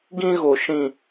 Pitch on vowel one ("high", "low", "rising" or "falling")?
high